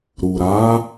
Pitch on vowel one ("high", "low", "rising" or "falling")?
low